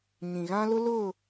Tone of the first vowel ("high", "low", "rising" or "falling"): low